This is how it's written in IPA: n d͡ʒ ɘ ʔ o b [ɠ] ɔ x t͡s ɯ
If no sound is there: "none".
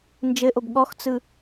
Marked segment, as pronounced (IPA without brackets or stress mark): ɠ